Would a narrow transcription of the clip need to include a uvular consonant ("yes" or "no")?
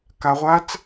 yes